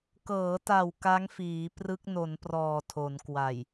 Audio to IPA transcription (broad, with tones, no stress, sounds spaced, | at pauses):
k ɤː˩˦ t a˨˩ w k a˦˥ ŋ f iː˩˦ p r ɯ˦˥ k̚ n o˩˦ n p r ɔː˨˩ tʰ o˩˦ n k w a˨˩ j